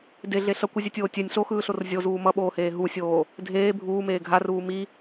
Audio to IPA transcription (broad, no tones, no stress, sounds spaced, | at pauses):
d e ɮ e ɬ ʌ kʷ ɯ zʲ ɛ tʲ oː tʲ ɛ nʲ ɬ o x ɯː ɬ o r zʲ o z uː m ʌ ɓ oː h eː ɦ u sʲ oː | dʱ eː bʱ uː m eː ɡʱ a r uː m i